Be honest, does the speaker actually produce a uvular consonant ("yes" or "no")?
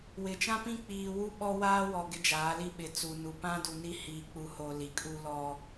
no